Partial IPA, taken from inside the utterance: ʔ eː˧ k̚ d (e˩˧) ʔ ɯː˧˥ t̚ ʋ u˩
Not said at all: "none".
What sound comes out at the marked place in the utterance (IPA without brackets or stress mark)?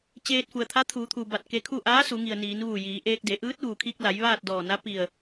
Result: e˩˧